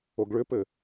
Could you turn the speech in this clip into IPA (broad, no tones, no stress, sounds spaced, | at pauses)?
o ɡ ɭ ʏ p ɘ